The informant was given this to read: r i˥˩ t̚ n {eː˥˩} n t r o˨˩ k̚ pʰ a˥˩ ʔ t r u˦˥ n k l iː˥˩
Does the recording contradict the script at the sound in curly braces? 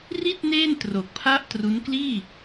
no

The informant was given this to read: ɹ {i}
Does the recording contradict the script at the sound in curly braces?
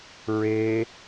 yes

